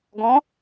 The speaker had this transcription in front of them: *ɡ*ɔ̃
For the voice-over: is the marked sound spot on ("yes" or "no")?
yes